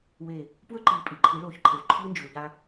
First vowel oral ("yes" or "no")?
yes